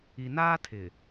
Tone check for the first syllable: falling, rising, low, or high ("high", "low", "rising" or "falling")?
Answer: low